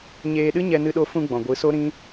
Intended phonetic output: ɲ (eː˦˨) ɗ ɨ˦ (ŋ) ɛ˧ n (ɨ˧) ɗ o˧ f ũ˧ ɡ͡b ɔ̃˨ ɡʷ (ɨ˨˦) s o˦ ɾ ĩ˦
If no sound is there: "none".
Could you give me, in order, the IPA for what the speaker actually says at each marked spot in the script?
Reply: eː˧, ɲ, ɨ˧, ɨ˨˦

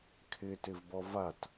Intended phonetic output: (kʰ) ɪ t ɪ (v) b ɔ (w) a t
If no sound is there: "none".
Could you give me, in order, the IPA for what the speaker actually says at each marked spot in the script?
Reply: kʰ, v, v

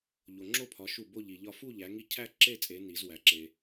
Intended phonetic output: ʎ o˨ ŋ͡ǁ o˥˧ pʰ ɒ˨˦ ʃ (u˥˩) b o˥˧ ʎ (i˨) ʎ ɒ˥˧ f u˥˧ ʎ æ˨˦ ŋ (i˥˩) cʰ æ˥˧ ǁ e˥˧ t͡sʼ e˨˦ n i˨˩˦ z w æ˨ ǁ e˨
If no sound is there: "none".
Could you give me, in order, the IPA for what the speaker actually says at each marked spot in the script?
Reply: u˥˩, i˨, i˥˩

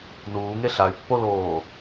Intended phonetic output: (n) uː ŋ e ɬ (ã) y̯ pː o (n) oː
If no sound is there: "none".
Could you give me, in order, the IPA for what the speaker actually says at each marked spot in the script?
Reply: n, a, l

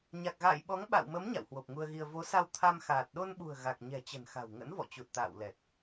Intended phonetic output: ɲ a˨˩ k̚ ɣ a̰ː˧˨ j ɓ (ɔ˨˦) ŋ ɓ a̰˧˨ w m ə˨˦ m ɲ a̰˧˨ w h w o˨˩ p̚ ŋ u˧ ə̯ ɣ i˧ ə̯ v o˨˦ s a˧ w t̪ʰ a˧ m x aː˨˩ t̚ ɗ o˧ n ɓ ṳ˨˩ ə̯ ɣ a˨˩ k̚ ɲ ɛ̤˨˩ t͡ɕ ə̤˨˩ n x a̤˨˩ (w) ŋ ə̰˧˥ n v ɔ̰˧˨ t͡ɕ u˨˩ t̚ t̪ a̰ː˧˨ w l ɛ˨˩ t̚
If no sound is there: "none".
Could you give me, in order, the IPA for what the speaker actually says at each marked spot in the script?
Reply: ɔ˨˦, w

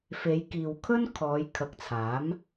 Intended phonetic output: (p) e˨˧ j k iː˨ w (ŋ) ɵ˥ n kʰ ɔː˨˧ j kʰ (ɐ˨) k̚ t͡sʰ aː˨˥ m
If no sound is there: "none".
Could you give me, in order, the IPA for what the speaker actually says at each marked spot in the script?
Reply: f, kʰ, ɐ˨˥

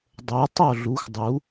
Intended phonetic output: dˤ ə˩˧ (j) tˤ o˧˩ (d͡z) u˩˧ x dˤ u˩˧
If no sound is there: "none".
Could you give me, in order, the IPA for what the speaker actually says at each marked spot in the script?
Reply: j, ɮ

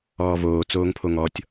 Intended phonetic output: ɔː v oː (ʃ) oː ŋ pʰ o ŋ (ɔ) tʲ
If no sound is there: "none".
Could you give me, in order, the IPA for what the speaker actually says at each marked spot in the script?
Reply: t͡s, ɔ

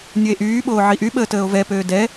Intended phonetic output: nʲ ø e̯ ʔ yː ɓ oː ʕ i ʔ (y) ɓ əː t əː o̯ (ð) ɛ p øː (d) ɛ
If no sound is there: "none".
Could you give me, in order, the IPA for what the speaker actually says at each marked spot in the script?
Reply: y, v, d

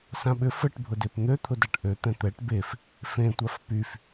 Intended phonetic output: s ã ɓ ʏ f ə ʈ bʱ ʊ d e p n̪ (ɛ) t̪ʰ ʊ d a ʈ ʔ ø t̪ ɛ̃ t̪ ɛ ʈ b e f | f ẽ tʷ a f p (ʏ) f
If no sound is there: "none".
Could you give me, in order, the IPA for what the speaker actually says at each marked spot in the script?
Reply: ø, y

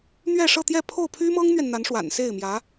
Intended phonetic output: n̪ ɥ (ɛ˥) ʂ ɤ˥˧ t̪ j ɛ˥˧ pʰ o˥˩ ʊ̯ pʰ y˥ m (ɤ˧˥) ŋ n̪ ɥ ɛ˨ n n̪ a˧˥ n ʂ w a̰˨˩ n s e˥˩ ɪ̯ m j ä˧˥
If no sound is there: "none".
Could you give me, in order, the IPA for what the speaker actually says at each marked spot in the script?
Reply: ɛ˥˧, ɤ˥

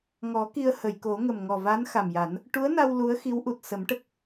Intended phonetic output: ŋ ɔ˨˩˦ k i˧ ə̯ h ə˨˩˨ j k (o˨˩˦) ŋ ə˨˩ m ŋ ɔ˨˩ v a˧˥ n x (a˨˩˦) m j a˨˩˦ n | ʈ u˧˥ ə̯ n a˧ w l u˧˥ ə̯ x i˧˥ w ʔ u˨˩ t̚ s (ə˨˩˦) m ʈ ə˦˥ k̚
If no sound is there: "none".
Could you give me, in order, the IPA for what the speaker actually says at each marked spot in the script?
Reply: o˨˩˦, a˨˩, ə˨˩˦

